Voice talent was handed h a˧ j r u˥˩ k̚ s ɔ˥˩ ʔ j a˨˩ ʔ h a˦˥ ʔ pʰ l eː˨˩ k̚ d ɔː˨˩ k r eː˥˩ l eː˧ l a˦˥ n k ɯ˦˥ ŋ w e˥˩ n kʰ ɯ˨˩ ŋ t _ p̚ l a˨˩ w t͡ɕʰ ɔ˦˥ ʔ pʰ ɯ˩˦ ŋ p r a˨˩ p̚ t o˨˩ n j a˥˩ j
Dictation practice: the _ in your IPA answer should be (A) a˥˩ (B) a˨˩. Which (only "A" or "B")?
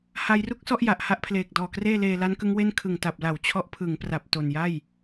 B